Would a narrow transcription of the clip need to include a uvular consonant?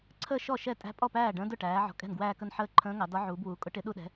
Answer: no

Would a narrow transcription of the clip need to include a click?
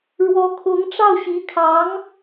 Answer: no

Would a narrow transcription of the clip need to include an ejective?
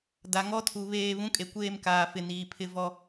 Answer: yes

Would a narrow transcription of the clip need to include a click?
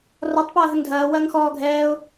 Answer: no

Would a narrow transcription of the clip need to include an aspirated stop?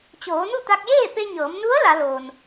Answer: no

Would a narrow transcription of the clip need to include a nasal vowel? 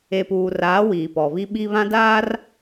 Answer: yes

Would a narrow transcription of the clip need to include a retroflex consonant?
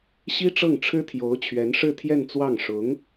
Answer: yes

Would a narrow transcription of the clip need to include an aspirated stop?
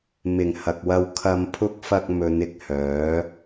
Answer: yes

